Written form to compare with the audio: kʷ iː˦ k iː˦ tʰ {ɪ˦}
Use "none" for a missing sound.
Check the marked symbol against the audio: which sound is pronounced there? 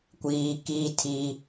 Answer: i˦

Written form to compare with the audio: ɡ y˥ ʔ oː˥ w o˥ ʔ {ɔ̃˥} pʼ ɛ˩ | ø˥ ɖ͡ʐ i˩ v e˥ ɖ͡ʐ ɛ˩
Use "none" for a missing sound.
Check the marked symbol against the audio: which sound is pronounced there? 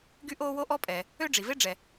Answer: ɔ˥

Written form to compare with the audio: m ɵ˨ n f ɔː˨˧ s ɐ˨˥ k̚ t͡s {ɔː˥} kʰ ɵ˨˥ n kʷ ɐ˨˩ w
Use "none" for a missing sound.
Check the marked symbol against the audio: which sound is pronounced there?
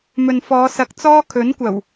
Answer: ɔː˥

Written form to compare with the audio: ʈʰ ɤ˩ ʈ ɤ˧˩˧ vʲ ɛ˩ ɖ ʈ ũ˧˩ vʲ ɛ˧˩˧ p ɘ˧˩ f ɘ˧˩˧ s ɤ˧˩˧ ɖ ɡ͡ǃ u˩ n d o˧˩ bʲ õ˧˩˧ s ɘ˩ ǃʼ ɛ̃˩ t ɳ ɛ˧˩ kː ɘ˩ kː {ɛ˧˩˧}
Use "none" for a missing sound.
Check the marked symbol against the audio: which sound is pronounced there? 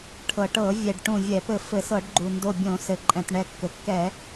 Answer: ɛ˧˩˧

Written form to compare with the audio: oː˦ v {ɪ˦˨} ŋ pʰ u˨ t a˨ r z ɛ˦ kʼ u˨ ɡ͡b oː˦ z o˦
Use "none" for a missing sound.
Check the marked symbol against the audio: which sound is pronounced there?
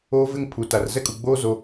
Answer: ɪ˦˨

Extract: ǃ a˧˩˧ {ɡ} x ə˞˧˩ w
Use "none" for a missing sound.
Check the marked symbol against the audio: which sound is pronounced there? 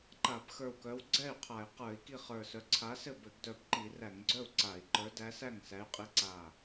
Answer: b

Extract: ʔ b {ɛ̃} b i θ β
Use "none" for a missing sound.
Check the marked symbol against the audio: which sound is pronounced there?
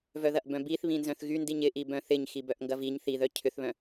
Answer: œ̃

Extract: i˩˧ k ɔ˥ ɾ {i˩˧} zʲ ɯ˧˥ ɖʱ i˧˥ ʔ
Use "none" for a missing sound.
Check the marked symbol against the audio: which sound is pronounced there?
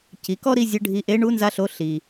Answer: i˥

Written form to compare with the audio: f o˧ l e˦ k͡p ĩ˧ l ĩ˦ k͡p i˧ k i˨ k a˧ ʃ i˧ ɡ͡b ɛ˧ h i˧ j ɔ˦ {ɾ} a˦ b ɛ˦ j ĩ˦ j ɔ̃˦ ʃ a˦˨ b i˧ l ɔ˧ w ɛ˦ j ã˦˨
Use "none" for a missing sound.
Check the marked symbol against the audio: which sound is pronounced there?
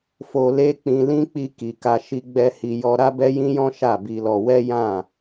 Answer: ɾ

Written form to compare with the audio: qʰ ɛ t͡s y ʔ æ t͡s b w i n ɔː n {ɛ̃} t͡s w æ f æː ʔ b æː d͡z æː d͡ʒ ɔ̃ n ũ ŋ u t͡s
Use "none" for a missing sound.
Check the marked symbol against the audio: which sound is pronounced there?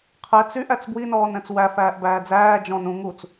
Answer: ɛ̃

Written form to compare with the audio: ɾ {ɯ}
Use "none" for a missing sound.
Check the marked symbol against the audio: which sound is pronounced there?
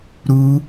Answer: u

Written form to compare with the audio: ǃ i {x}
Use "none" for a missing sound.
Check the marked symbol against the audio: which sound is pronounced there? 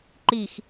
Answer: x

